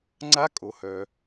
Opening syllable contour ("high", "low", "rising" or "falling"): rising